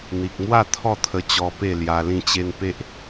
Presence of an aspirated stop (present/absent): present